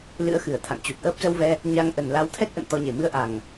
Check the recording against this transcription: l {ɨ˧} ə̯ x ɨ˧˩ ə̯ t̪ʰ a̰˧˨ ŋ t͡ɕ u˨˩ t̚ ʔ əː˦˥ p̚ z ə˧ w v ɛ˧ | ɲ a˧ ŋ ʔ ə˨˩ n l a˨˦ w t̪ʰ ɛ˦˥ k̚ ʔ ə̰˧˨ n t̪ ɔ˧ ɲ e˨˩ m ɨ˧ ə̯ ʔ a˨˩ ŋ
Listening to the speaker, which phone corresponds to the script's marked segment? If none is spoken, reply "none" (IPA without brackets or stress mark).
ɨ̰˧˥